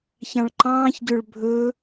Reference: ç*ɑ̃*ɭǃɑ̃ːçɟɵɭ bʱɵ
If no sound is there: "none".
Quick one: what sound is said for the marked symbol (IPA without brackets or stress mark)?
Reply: ɑ̃